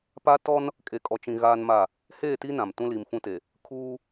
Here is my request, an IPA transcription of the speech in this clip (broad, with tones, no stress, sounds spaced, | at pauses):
p a˦ t ɔ˦ n | kʼ e˨ kʼ ɔ˨ t͡ʃ ĩ˨ ɣ aː˦ n m a˦˨ | h eː˦˨ t i˦ n ã˨ m t ũ˦ l i˨ m f ũ˦ t e˨ | kʰ uː˦